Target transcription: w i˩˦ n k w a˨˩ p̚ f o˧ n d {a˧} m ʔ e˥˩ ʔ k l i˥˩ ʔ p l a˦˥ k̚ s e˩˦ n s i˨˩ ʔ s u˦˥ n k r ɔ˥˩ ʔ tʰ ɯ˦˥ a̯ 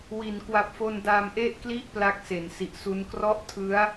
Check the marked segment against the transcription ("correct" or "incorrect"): correct